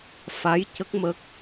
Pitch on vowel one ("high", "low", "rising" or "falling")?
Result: rising